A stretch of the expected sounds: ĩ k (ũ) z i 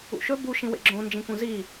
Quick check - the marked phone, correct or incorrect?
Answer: correct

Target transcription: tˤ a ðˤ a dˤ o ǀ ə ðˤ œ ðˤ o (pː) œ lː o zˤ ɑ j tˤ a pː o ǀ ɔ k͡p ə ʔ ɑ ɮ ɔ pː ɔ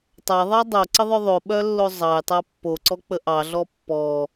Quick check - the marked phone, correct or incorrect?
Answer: incorrect: ɓ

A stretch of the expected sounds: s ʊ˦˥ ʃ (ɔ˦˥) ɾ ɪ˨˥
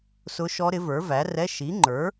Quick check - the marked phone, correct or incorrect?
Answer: correct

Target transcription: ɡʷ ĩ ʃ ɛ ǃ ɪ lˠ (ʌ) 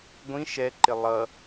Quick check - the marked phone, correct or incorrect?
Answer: correct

